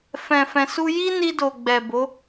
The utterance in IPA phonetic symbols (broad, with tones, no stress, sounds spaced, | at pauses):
f ɛ̃˨ f ɛ̃˨ s u˧ j i˦ n i˧ d o˨ ɡ͡b ɛ˨ b o˨˦